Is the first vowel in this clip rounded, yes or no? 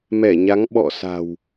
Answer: no